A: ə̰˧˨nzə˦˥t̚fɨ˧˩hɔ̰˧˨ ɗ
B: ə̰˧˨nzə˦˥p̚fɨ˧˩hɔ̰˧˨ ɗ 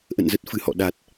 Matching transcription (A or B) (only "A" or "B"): A